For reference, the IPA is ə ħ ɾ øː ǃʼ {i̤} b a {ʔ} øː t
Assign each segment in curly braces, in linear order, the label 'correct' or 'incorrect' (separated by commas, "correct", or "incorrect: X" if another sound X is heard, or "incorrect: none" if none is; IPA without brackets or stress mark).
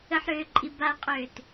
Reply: incorrect: i, incorrect: qʼ